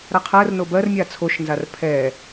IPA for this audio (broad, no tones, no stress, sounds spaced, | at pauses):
ɾ a qʰ ɜ r n o b ɜ r mʲ a t͡sʰ o ʃ n z a r pʰ ɛ